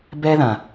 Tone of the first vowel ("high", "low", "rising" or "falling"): high